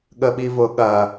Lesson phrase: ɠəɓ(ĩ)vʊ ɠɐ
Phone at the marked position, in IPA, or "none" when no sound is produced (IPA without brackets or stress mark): i